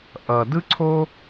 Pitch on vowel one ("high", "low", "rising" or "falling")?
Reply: low